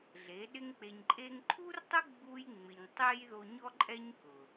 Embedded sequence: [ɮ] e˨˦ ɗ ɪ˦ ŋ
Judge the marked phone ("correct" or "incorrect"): correct